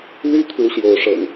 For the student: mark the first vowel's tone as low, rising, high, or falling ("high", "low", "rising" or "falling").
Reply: high